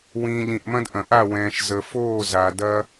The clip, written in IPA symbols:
wĩː˨ ʎĩ˨ʔmɐ̃˦dʔɐ̃˨ʔa˦˨ wɛ̃ː˨ʃ zə˨foː˦˨za˨ dɐː˦

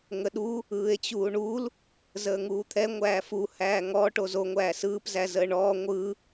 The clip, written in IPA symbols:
ŋəɗu | ɯːe̯t͡ɕuːɳul | zəːŋuːt̪ʰɛ ŋʷæːfu hæːŋɔ ʈozo ŋʷæːsɯːp zæzəːɳɔː ŋʷɯ

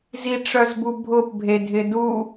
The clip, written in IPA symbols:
ziʈ͡ʂœzbubʱʊp bʱedʱɪdu

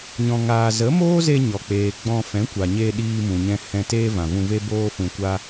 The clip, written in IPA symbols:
ɲɔ̃˨ŋaː˨ zə˨˦moː˦ze˧ ɲɔ˨k͡peː˨ɡ͡bɔ̃˧ fɛ̃˨˦kʷa˨ɲe˧ ɗiː˧mũ˨ɲɛ̃˧ hɛ̃˧ teː˦vã˨vũ˧ve˦ boː˦fũ˧kʷa˦

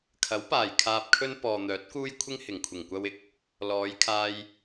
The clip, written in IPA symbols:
kʰɐ˨˥wpaː˨˩j kʰaː˧p̚kʰɵ˥n pɔː˨n̪œː˨˥t̚kuː˥jkʷʰɪ˥ŋ hɪ˨˩ŋkʷʰɪ˨˩ŋkʷɐ˧wɪ˨k̚ | lɔː˨˧jkʰaː˧j

